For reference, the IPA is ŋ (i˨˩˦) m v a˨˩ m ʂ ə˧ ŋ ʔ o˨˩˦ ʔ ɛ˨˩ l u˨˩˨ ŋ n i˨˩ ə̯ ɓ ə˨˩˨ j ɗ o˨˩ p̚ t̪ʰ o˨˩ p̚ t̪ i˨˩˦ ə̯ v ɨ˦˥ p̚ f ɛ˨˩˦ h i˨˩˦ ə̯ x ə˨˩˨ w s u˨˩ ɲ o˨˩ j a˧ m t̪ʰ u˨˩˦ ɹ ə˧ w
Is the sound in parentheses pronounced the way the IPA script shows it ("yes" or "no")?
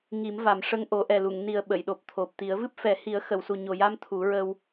yes